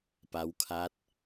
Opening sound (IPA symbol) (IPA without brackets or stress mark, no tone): p